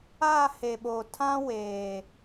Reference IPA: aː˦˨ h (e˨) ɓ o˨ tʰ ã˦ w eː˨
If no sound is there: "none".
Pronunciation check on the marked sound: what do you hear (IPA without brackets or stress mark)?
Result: e˨